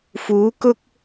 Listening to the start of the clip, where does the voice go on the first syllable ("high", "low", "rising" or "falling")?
rising